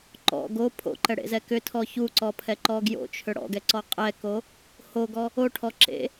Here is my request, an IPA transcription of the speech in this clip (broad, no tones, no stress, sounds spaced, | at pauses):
ǃ ɔ̰ ɡ o pʰ o̰ ǃ ɛ ɽ ḛ z ɛ k ʏ tʰ ɔ ç u ǀ ɔ pʰ ɛ ǃ ɔ ɡ j o̰ t͡ʃʰ ʏ ɽ ɔ̰ ɡ ɛ ǀ ɔ qʼ ɛ k o | h o ɡ ɔ | o ʈʰ ɔ ǁ ḛ